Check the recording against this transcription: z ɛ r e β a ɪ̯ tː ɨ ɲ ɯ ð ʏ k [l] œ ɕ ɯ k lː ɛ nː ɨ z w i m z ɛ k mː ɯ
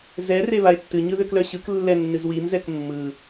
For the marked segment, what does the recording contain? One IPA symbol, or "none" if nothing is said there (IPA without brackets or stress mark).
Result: l